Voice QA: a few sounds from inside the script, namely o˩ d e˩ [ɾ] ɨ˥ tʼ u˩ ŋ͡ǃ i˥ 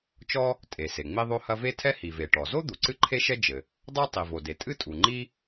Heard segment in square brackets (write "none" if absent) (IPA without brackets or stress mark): tʼ